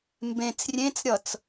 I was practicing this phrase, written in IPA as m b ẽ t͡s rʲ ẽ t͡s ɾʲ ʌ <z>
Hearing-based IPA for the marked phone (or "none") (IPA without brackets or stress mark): t͡s